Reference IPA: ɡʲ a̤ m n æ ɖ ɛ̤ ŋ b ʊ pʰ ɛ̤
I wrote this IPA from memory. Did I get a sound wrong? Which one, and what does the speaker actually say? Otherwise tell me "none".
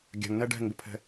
m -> ŋ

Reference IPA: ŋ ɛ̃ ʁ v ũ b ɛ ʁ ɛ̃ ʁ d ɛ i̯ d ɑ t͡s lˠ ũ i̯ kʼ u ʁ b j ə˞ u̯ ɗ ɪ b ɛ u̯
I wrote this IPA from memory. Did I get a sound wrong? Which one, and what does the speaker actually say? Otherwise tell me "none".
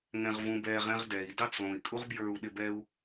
none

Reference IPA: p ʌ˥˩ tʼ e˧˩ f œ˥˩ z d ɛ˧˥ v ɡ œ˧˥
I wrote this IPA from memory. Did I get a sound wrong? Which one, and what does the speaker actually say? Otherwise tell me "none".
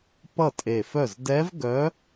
none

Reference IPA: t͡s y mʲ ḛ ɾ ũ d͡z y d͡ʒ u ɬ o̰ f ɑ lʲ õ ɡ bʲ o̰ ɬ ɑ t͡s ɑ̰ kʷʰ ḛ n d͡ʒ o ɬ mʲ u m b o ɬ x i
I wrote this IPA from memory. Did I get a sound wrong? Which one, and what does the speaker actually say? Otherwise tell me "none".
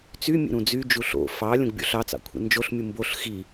none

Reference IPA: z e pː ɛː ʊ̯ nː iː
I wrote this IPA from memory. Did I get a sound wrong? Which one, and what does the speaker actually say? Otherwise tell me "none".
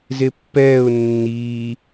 none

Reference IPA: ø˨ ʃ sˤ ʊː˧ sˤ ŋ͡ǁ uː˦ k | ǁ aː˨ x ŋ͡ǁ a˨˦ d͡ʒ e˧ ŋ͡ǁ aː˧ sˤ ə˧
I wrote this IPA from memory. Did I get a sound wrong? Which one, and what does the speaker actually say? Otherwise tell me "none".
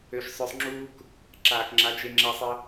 x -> k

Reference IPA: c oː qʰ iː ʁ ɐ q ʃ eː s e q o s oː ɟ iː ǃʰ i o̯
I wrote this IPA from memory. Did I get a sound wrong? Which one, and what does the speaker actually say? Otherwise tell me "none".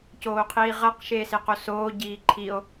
none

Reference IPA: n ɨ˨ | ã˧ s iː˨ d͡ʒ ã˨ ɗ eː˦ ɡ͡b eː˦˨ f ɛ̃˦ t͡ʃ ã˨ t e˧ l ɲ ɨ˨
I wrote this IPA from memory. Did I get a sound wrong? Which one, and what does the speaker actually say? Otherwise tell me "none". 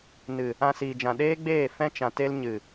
none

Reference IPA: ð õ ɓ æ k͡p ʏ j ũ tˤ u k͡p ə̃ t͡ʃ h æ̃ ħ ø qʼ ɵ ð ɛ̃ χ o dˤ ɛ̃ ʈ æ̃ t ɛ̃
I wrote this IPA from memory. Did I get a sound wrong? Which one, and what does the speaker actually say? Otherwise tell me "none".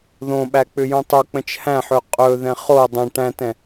none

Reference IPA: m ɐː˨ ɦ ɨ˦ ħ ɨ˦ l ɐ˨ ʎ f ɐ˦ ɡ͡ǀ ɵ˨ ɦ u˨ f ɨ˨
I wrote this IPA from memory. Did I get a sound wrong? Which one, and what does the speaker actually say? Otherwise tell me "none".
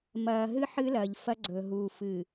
none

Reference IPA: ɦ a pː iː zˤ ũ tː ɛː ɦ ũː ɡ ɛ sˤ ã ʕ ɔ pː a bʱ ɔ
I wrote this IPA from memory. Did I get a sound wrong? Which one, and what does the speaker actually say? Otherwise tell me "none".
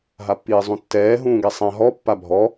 ʕ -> ɦ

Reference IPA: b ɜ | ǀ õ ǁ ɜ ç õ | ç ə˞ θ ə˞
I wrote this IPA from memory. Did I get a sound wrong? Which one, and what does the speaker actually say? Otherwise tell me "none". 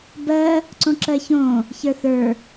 none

